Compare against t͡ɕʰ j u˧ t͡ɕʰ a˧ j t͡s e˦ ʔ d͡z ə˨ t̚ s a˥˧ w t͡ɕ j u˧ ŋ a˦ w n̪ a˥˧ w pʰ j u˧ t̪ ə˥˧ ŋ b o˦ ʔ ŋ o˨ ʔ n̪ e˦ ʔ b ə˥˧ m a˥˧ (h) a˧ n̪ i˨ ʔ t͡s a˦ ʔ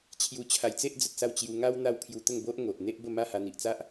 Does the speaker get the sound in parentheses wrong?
no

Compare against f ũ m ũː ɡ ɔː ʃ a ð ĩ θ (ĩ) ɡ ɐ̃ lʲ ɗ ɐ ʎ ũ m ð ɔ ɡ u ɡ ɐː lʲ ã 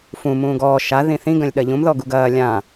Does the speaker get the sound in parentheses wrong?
no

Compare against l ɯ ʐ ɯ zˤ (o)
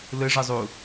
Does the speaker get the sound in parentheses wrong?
yes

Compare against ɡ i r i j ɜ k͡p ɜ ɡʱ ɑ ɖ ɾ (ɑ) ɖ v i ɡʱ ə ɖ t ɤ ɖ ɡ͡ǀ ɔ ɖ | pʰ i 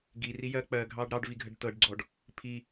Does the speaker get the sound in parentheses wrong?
no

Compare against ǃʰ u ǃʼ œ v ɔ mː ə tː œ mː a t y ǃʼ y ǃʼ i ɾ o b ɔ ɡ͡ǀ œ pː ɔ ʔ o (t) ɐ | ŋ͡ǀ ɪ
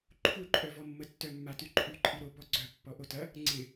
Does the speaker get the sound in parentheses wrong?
no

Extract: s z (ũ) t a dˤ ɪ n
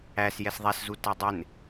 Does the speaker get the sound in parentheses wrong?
yes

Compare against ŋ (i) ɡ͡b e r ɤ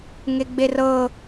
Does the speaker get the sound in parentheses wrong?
yes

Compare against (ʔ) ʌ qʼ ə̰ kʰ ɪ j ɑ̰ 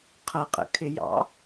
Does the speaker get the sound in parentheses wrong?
yes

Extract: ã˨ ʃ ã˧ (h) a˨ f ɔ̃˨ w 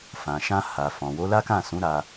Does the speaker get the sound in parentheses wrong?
no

